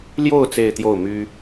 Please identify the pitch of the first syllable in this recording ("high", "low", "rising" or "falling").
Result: falling